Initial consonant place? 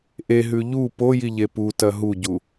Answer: glottal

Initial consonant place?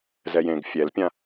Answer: alveolar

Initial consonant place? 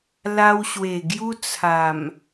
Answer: alveolar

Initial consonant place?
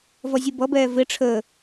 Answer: labial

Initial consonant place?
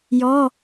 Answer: palatal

